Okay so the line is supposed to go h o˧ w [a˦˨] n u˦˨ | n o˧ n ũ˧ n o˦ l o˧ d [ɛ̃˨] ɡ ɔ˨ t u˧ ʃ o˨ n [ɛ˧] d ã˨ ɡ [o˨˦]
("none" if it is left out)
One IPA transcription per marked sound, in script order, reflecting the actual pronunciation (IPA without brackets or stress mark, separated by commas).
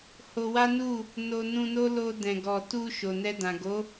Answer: a˦, ɛ̃˨, ɛ˧, o˨˦